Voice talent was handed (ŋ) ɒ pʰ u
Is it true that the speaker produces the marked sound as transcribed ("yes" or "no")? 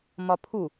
no